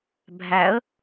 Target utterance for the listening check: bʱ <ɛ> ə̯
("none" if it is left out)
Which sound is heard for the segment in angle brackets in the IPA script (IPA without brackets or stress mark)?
æ